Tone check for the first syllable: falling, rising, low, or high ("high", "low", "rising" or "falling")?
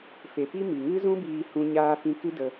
low